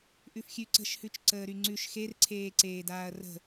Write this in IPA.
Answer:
ʔ ʉ f xʲ ʉ ǀ ə̤ ʃ h ʉ t͡ʃ ǀ əː ɾ y ŋ͡ǀ ʉ ʃ x e r ǀʰ eː ǀ eː d aː ɐ̯ r ə̤

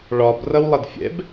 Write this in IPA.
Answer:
ɭ ɒ b r ʌ w lˠ ʌ d fʲ ɛ̰ b

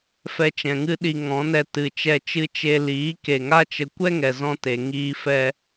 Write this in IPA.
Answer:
f ɛ˧ t͡ʃ ɛ̃˨ ŋ ɨ˦ ɗ i˧ ŋ ɔ̃˨˦ n ɛ˧ t ɨ˨ t͡ʃ ɛ˧ t͡ʃ ɨ˦ t͡ʃ e˧ l iː˨˦ k e˨ ŋ a˦ t͡ʃ ə˧ kʷ ɛ˦ ŋ ɛ˨ z ɔ̃˧ t e˨ ŋ iː˧ f ɛ˧

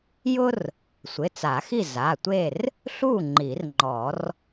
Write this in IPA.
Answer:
j ʊ˥ r | sʷ ɪ˩˧˩ t͡s a˨˩˦ x i˥˨ z a˩˧˩ tʷ e˥˨ r | ɬ u˥˨ ŋ͡ǃ i˨˩˦ r ŋ͡ǃ ɔ˨˩˦ r

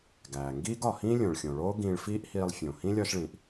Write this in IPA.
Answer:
ɡ æː˩ ŋ ɡ iː˥ ɡ ɒ˩ h ĩː˥ lʲ õ˩ ɭ xʲ õ˩ ɭ oː˥ ɡ ĩː˧ ɭ f iː˥ ʔ h iː˧ lˠ fʲ õ˩ h ĩ˥ lʲ ɒː˥ ʃ ɭ ĩː˩ ʔ

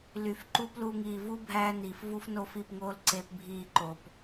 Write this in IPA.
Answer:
l y˨ f ǃ uː˦ p l uː˧ ŋ iː˨ v u˦ bʱ æː˧ n iː˨ f v u˦ f n oː˦ f i˦˨ p ŋ oː˦ l ǀ eː˧ p bʱ iː˦˨ ǃ o˨ p

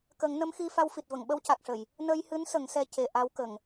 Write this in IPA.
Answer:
k ə˨˩˦ ŋ n ə˧˥ m x i˧ f a˧ w f i˨˩ t̚ v ə˨˩˨ ŋ ɓ ə˧ w c a˨˩ k̚ ʂ ə˨˩˨ j | n ə˧ j h ɨ˧˥ n s ə˨˩˦ ŋ s ɛ˧ c e˨˩ ʔ a˧˥ w k ə˨˩˨ ŋ

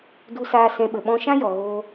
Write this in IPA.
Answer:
d u˧ s aː˧ s ɛ̃˧ ɓ ə˨ ɓ ɔ̃˦ ʃ ã˦ j ɔ˨ ɣ oː˧

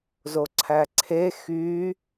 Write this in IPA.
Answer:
z o ǀʰ æ ǀʰ e x y

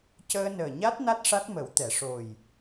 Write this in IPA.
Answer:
c əː˧ n əː˨˩ ɲ a˦˥ t̚ n a˦˥ t̚ ʂ a˦˥ t̚ m ə˨˩˦ w t̪ ɛ˨˩˨ ʂ o˨˩ j

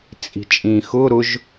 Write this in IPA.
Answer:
t͡sʼ i̤ t͡ʃʼ ĩ x ʊ ɾ ʊ ʒ

